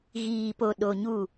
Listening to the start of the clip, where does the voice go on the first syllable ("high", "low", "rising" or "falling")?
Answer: low